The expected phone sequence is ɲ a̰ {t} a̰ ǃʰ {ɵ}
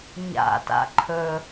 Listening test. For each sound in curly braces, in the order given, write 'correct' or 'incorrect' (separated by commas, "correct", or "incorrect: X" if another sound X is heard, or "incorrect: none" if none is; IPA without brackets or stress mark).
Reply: correct, correct